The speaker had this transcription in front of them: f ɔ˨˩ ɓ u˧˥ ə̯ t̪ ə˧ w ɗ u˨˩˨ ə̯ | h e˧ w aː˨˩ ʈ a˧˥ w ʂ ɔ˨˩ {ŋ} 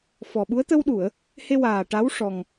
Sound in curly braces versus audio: correct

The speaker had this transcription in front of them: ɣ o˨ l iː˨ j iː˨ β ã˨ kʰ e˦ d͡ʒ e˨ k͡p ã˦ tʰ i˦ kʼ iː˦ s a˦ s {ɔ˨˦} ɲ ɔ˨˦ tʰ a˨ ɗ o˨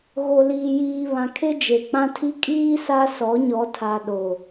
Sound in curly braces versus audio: correct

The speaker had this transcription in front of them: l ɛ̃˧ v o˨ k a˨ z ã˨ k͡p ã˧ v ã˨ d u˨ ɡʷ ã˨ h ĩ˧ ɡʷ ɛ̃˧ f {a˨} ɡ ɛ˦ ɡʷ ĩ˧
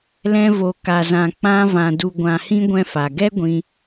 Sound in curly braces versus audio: correct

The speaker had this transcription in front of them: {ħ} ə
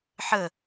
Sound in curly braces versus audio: correct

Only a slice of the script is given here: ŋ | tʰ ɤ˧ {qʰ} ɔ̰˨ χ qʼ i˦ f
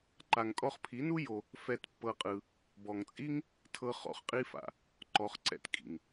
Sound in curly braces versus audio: incorrect: χ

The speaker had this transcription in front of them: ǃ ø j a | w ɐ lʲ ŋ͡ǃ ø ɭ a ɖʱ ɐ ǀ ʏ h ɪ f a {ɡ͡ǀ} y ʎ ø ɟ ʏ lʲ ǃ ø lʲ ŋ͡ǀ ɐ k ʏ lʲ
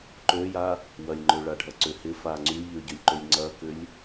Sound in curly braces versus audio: incorrect: ŋ͡ǀ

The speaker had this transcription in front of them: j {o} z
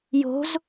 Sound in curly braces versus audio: incorrect: o̤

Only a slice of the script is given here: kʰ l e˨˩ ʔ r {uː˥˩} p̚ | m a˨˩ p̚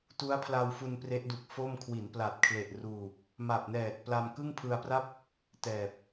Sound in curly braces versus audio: incorrect: uː˨˩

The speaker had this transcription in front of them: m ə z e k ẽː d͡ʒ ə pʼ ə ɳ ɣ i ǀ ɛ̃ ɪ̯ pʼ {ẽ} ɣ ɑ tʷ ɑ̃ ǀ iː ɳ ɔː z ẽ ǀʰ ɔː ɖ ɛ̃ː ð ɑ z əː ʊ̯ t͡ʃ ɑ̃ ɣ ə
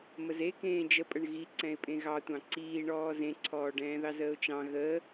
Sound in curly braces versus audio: correct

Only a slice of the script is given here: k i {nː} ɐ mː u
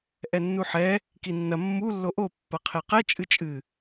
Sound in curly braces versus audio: correct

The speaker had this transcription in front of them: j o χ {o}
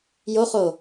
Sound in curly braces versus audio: correct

